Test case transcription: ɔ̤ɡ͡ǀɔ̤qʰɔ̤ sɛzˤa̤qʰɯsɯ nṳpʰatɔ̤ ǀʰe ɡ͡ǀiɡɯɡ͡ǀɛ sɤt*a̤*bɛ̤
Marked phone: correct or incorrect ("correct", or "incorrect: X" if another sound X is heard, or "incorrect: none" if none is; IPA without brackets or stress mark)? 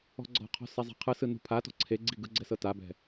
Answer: incorrect: a